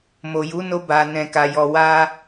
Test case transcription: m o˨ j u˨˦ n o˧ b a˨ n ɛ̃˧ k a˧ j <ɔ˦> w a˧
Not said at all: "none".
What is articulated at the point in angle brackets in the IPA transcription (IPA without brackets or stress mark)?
ɔ˧